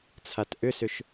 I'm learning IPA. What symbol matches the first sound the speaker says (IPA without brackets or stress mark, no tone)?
t͡sʰ